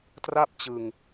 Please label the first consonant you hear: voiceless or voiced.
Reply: voiceless